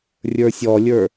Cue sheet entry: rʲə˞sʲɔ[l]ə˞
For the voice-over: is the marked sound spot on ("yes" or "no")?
no